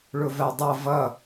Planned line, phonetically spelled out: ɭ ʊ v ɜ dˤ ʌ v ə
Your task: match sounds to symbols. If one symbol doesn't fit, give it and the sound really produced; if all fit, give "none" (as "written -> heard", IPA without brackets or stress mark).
ə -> ʌ